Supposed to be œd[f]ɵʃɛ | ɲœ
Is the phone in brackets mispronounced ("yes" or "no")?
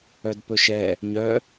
yes